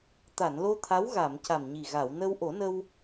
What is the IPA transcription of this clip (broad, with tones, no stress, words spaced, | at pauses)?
t̪a˨˩˨nlo˧ t̪ʰa˧˥wɣa˨˩˨m ca˨˩mɲi˨˩ ɣa˨˩˨wnə˧w ʔo˨˩˦nə˧w